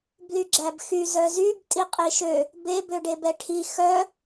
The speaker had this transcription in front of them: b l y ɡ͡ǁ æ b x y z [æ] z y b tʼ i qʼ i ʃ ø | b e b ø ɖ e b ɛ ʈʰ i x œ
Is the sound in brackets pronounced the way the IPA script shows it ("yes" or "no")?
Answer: no